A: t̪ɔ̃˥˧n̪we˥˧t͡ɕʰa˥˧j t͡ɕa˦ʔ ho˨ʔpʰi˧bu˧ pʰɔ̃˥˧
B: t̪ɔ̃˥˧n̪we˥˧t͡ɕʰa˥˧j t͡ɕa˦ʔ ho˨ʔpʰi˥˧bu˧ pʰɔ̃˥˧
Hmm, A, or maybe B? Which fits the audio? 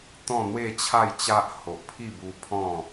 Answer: B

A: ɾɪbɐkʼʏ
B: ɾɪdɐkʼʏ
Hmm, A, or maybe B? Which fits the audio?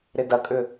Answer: B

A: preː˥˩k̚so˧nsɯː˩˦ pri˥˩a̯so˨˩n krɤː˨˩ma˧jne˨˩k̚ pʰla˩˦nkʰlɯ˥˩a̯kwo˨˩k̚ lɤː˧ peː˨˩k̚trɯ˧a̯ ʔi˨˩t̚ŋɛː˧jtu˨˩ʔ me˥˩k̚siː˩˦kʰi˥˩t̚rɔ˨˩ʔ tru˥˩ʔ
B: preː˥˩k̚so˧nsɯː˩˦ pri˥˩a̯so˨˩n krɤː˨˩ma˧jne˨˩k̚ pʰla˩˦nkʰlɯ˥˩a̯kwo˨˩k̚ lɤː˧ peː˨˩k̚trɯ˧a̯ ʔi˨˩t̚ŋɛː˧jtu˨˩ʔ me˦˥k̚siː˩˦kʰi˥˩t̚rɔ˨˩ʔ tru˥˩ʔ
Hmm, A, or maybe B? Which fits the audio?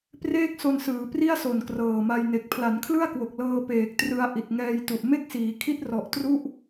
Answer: A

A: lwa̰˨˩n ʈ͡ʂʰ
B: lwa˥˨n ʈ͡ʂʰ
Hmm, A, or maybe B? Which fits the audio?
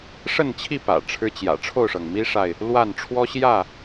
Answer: B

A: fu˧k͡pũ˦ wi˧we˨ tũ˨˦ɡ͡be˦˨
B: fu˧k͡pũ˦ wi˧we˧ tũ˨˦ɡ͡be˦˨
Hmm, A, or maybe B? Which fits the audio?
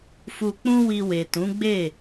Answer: A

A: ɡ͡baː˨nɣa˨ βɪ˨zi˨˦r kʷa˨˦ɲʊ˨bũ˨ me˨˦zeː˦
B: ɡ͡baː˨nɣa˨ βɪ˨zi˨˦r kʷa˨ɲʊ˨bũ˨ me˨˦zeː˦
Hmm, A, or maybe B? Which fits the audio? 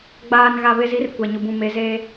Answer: B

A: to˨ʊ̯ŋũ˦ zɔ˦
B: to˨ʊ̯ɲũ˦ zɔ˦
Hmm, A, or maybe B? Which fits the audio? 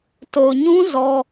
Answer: B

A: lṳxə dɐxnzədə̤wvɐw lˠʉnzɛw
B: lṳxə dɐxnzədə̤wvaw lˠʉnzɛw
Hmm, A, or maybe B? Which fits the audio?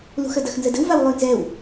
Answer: B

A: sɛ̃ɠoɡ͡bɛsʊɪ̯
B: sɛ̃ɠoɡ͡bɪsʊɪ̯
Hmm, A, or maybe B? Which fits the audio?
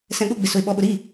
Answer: B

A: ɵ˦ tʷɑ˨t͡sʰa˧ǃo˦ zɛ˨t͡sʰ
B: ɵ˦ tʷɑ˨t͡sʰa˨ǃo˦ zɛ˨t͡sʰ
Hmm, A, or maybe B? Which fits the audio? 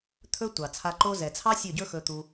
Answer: A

